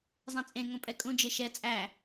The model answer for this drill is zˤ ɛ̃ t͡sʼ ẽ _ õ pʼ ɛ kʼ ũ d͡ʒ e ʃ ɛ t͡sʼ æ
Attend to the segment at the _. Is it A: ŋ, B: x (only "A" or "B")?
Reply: A